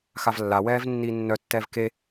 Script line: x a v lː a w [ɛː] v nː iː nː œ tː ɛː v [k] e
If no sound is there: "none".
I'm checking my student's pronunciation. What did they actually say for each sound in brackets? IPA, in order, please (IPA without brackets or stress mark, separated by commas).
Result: ɛː, k